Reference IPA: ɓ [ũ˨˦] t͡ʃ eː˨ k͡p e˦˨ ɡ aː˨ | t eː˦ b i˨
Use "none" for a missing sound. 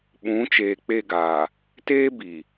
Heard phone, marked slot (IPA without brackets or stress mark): ũ˨˦